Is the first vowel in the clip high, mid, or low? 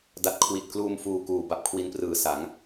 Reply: low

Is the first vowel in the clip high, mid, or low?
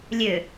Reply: mid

